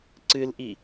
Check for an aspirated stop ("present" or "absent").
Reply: absent